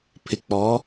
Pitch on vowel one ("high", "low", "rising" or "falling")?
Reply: low